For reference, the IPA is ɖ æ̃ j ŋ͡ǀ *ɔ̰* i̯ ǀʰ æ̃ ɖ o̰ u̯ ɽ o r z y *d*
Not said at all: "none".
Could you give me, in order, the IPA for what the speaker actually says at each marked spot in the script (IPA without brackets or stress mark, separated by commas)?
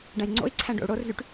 o̰, ʈ